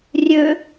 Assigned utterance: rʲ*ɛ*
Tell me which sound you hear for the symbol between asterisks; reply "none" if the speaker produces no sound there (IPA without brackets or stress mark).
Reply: ø